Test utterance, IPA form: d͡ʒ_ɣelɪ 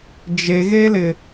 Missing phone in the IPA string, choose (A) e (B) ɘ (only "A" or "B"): A